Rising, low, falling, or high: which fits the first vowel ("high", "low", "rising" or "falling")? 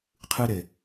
high